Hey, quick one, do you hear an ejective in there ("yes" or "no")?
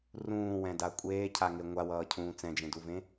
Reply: yes